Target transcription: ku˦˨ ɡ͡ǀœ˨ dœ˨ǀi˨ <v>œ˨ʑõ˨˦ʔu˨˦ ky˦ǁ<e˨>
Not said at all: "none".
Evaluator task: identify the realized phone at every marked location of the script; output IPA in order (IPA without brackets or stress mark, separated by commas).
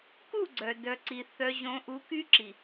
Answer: θ, i˨